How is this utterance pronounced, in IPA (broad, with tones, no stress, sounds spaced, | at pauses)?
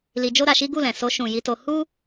l i˧ d͡ʒ o˦ ɾ a˧ ʃ i˦ ɡ u˦˨ l ɛ̃˨ s o˧ ʃ ũ˨ j i˨˦ t o˧ h u˦